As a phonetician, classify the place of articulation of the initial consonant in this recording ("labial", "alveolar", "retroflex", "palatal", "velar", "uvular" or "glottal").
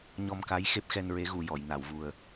palatal